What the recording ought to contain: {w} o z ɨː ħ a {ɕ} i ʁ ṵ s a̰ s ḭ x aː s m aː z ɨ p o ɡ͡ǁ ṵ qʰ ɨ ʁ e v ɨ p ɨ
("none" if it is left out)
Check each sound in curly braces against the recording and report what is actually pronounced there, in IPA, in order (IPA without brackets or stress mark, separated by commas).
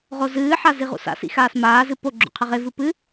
ʁ, z